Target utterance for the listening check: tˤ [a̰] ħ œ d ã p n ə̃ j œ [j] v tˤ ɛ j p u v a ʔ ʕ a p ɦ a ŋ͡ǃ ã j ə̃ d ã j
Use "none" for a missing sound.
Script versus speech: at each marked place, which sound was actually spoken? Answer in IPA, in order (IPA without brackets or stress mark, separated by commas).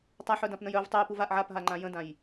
a, none